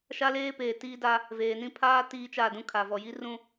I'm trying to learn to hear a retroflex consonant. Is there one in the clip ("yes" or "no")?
no